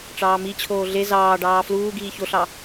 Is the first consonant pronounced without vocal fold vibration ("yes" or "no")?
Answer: yes